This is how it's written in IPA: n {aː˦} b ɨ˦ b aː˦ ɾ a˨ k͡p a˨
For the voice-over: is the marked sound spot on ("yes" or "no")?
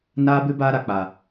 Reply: yes